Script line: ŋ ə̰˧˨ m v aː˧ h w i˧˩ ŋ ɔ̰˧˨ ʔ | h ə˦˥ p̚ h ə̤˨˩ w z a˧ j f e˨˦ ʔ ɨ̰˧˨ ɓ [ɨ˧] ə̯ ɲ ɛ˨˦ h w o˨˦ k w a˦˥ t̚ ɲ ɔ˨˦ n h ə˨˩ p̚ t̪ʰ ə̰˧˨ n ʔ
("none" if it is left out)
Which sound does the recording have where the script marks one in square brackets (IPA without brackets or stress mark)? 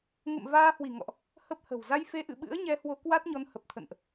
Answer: ɨ̰˧˥